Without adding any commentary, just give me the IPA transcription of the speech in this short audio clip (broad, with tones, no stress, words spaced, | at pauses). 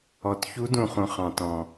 ɔ˩t çu˨˦dũ˩χũ˩ χɑ̃˩tɔ̃˩